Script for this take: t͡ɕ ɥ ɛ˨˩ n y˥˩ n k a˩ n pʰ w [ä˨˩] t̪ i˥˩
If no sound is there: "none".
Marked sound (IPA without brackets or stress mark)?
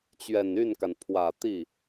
ä˨˩